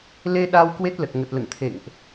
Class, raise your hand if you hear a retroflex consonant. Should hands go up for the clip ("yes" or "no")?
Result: no